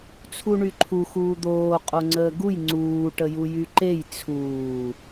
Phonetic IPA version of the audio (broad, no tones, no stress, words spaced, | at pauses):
t͡sʰuɳyǃʰu xuːd̪oː qʼoŋ͡ǀəːɡuj ŋ͡ǀuː ʈəjujyǃej t͡sʰuː